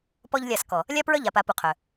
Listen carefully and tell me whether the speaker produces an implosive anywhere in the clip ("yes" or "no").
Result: no